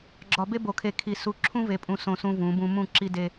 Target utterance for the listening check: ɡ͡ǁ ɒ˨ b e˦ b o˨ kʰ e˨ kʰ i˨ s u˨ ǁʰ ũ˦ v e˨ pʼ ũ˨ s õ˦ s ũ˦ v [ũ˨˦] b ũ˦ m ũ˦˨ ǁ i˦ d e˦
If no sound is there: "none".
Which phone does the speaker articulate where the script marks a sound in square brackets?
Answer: ũ˨˦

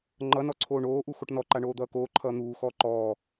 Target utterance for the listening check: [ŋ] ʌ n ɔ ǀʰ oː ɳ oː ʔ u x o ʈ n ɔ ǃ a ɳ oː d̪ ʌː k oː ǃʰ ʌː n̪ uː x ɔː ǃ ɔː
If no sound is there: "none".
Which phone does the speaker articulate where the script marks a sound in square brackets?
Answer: ŋ͡ǃ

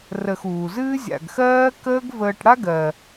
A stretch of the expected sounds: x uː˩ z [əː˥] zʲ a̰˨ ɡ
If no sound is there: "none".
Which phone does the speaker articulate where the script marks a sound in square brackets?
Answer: ɨː˥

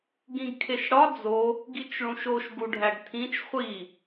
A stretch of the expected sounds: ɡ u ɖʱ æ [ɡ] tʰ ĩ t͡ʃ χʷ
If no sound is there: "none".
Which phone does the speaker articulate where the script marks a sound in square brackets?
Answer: ɡ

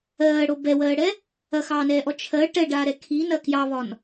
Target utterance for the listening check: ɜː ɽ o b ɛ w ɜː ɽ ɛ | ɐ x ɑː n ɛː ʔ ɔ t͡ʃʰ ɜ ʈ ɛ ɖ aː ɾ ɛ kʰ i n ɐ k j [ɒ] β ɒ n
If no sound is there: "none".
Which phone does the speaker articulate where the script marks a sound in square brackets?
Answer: ɑ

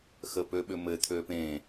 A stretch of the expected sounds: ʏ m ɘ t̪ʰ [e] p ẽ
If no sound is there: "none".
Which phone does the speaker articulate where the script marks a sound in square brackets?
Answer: ø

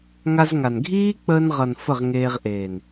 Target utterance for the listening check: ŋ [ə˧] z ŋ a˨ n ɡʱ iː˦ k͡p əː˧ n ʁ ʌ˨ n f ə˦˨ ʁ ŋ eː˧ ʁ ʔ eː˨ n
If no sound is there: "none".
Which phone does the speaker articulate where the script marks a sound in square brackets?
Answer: a˧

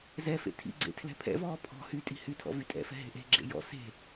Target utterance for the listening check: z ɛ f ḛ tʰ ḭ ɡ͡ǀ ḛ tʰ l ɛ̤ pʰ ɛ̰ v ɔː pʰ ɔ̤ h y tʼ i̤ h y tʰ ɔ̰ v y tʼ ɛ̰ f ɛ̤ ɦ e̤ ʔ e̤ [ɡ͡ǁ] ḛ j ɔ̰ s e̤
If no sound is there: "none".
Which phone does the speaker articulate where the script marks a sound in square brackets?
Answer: ɡ͡ǁ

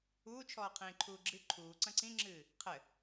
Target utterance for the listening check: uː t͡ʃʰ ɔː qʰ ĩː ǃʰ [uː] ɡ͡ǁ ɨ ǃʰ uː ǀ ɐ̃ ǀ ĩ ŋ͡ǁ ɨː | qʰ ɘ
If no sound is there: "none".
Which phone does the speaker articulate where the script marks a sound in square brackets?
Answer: uː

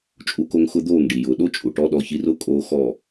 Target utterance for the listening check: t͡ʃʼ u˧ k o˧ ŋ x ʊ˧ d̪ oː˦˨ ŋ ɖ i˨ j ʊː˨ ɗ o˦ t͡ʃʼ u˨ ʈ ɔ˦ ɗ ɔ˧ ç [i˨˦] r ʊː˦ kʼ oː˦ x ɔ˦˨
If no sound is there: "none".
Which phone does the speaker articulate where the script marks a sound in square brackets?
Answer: i˧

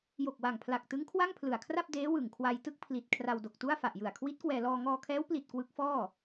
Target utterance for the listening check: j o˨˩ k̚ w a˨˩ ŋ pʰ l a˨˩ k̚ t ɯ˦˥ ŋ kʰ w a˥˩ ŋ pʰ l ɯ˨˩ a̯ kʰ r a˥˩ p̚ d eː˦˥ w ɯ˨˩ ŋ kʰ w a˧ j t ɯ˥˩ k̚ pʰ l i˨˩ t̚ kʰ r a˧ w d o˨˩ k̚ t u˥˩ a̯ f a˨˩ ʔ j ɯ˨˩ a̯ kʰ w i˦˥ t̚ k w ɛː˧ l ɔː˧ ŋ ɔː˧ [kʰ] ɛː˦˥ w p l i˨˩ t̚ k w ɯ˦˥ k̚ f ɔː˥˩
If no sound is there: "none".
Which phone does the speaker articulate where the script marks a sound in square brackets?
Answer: kʰ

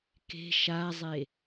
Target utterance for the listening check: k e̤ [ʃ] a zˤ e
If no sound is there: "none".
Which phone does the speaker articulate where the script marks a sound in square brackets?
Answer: ʃ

